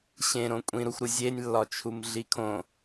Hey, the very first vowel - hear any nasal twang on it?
yes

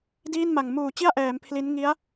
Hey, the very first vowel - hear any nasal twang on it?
no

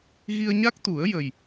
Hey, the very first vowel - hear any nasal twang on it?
no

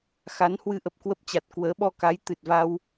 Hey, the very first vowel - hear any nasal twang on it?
no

